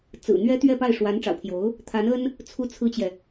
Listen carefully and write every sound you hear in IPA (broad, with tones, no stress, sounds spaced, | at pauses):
t͡s ɹ̩˨˩ n̪ ɥ ɛ˥ t̪ ɥ ɛ˥˧ p a˥˩ ɪ̯ ʂ w a˧˥ n ʈ͡ʂ ɑ̰˨˩ ʊ̯ pʰ j o˧˥ ʊ̯ | t̪ʰ a˧˥ n ə˥ n | t͡sʰ u˥ t͡sʰ ɹ̩˥ t͡ɕ j ɛ˨